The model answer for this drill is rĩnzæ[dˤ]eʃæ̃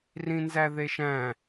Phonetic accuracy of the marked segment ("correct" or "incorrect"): incorrect